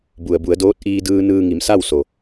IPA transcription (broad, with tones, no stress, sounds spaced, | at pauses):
b u˩ ə̯ b u˩˧ ə̯ d oː˧˥ t̚ ʔ iː˧ d ɯː˧ n ɯː˧ ŋ i˩˧ m s a˥˨ w s o˩